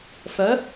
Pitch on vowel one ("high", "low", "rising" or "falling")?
rising